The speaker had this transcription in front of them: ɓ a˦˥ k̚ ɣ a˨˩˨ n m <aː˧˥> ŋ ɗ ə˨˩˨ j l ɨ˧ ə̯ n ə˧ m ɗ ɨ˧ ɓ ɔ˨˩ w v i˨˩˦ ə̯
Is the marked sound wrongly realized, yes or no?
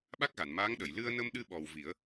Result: no